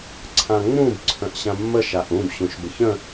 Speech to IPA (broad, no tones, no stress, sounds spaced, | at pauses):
ǀʰ ã ŋ͡m ũ b ǀʰ ə̃ ʔ ɕ ã mː ə ʃ a ʔ ũ b ɕ ũ ʃ b ə ç ə̃